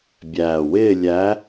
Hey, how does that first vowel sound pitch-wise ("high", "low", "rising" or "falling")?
low